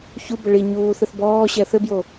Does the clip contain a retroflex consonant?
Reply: yes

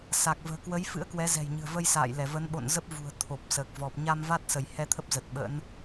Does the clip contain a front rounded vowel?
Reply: no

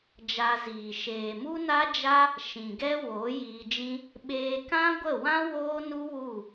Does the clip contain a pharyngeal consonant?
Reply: no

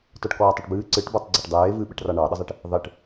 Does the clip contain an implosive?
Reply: yes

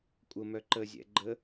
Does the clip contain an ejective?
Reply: yes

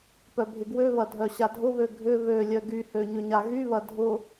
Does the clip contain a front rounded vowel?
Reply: yes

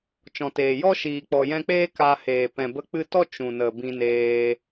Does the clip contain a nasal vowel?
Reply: yes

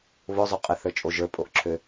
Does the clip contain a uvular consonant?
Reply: yes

